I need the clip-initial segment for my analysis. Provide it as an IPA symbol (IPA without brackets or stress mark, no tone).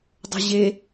dˤ